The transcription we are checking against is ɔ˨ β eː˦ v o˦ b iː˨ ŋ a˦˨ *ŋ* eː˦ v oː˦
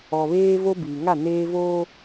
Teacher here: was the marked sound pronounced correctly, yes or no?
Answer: no